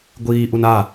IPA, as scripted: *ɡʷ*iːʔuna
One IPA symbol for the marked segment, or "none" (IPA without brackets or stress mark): ɡʷ